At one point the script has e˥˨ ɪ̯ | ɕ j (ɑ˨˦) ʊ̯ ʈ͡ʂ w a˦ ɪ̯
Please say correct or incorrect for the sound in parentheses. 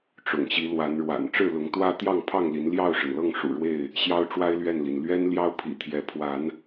incorrect